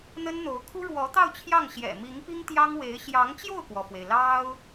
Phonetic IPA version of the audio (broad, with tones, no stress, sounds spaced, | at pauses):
n̪ ə˥ n n̪ o˧˥ ʊ̯ kʰ u˥ ɻ w ɔ˧˥ t̪ ɑ˥˧ ʊ̯ t͡ɕʰ j ɑ˥˩ ŋ ɕ j ɛ̰˨˩ m i˧˥ ŋ p i˥ ŋ t̪ j ɑ˥ ŋ w e˧˥ ɪ̯ ɕ j ɑ˧˥ ŋ t͡ɕ j o˥˩ ʊ̯ k w ɔ˩ f w e˩ ɪ̯ l ɑ˥ ʊ̯